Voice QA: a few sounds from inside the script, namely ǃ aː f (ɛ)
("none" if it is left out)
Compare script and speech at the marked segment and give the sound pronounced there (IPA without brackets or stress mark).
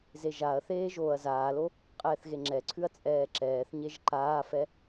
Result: ɛ